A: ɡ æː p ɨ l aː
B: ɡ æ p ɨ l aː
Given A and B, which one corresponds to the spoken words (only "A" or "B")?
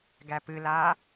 B